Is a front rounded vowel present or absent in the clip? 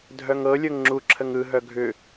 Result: present